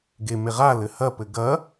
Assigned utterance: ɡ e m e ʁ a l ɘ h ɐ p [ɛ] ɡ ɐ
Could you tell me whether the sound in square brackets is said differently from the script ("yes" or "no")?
yes